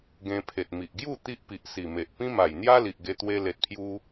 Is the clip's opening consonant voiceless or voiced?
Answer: voiced